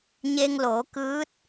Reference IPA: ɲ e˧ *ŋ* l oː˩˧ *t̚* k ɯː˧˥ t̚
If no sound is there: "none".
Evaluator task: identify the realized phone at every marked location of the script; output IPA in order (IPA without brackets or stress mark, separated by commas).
ŋ, none